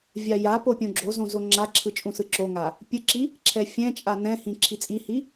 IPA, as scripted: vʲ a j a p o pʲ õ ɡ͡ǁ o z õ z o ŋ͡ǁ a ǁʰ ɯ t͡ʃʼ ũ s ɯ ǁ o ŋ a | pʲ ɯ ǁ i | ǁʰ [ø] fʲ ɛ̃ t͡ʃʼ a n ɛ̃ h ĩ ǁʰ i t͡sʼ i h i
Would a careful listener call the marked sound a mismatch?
yes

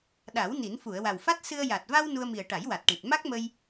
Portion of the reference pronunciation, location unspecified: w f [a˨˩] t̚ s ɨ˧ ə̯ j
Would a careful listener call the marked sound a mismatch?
yes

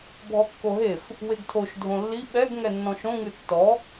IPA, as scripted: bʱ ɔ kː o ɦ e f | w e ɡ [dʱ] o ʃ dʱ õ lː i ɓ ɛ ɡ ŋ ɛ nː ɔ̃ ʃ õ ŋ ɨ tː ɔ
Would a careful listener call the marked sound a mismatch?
yes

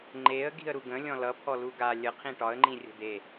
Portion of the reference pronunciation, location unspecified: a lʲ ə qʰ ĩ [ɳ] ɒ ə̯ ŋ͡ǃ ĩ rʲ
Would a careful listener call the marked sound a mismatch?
yes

